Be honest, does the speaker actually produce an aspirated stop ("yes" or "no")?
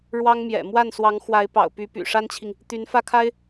yes